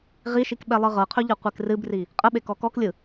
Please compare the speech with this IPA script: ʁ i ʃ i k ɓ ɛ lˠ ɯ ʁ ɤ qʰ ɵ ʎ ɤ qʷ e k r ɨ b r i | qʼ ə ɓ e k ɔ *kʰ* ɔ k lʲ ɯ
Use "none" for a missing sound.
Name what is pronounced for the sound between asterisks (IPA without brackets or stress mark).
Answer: k